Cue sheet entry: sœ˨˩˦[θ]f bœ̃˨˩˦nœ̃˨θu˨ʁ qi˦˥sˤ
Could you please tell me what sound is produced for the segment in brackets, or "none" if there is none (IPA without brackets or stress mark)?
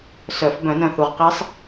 none